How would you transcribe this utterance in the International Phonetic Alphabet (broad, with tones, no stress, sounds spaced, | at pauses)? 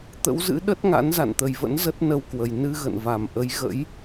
t̪ ə̰˧˥ w z ɨ̰˧˥ ɗ ə˦˥ t̚ ŋ a̰˧˥ n z a̰˧˨ n t̪ ə˨˩ j v ə̰˧˥ n z ə˦˥ t̚ n ə˧ w k w ə˨˩ j n ɨ˧ ɣ ə̰˧˨ n v a˨˩ m ʔ ə˨˦ j ɣ ə̰˧˥ j